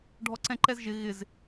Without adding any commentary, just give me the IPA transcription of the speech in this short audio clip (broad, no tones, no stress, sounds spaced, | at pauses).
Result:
ɖʱ ɔ ǀ ɛ̃ ǃ ɛ z ʒ ɪ ɣ ɪ z